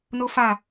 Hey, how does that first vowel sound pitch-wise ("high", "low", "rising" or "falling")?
high